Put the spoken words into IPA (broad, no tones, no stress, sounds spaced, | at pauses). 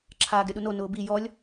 ǁʰ aː ɡ ɾʲ ɔ ɗ u n o n ʊː b i j ɔ lʲ